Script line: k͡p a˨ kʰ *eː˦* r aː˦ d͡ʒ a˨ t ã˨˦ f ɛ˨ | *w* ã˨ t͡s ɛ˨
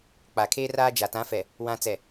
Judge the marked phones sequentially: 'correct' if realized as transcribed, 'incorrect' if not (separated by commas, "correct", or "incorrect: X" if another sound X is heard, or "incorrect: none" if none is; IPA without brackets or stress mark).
correct, correct